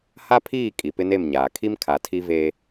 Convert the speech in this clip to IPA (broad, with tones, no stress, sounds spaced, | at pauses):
h a˦ pʰ iː˦˨ kʼ i˨ p ɪ˦ n e˦˨ m ɲ aː˨ kʰ i˦ m kʰ a˨ tʰ i˦ v eː˦